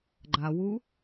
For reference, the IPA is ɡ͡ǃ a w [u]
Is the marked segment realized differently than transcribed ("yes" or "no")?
no